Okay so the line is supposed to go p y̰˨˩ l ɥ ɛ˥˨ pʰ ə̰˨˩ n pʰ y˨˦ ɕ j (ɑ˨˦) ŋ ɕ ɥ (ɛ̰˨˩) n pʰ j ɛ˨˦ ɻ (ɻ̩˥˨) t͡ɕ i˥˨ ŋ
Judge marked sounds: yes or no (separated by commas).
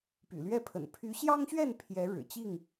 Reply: no, no, no